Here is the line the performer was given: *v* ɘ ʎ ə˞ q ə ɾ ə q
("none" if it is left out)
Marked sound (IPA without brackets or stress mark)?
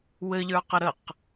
w